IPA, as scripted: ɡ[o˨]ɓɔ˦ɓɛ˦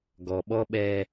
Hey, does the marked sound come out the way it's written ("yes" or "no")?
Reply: no